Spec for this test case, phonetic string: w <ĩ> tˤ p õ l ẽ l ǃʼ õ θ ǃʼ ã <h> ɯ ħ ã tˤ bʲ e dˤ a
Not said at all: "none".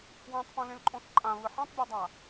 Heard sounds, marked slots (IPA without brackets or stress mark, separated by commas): ẽ, β